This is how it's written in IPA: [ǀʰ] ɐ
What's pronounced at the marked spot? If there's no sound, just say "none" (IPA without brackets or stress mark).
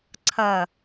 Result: ǀʰ